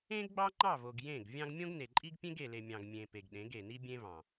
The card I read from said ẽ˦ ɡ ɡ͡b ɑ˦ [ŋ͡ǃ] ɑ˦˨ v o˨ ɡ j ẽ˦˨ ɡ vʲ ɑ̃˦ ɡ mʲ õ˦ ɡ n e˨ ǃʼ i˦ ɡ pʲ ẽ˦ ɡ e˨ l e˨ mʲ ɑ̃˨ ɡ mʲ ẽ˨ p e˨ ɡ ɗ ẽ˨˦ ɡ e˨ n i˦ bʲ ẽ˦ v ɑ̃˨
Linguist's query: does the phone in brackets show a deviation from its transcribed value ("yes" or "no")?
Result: no